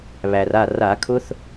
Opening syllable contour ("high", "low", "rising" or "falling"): low